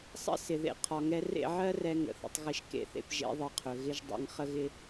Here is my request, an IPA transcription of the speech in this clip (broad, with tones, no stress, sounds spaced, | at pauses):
sˤ ə̰˦ s ɪ˨ ð ḛ˧ qʰ ɒ˨ ŋ ɛ˧ r ḛ˦˨ ʕ ɜ˦ r ɛ˧ ŋ ə̰˧ θ ə̰˦ tˤ ɣ ɪ˦ ʃ k ḛ˧ θ ḛ˧ p ʒ ḛ˦ ðˤ ə˧ qʰ ɵ˨ ɣ ɪ˦ ʒ dˤ ḛ˧ ŋ χ ə˦ ɣ ɪ˦